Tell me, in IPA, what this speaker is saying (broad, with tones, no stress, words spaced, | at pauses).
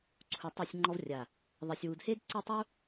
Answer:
ǀʰu˧tˤe˥˧sʲŋ͡ǃɔ˥vrʲa˧˩ | ðˤe˧sʲwu˧d he˥dǀɘ˥˧tˤu˥